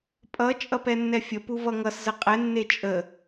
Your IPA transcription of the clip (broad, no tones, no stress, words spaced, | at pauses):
pʼʌ t͡ʃʼʌpɛnːɛfʲə puvʌŋʌs zəqʼɛ nːet͡ʃʼə